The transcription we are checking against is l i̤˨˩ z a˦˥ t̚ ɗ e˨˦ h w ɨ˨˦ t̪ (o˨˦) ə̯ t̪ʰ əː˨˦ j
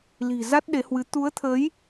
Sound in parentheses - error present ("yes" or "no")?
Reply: yes